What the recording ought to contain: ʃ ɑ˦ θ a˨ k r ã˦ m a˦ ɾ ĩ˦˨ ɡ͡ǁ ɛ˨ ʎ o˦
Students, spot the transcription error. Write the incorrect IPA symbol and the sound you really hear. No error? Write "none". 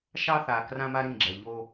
none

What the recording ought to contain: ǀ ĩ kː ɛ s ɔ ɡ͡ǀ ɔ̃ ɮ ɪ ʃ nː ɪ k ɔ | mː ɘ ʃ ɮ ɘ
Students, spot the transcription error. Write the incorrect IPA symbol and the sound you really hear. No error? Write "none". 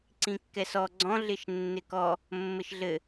none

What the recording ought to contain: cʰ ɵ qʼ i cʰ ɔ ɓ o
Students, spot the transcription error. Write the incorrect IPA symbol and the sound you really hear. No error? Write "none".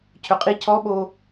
none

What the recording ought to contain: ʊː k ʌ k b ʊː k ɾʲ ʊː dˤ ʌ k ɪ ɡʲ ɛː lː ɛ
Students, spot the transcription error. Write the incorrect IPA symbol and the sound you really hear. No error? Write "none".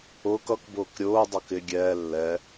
none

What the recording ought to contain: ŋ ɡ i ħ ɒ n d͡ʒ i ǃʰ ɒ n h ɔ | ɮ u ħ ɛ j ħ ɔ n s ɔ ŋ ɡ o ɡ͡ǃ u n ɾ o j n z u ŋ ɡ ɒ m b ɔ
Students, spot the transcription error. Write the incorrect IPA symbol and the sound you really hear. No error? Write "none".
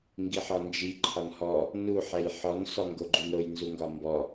ɮ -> n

